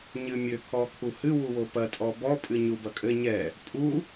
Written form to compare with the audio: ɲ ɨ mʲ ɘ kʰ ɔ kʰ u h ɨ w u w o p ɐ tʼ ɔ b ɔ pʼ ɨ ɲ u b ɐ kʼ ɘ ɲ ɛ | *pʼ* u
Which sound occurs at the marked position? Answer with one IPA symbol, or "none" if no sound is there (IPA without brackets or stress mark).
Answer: pʼ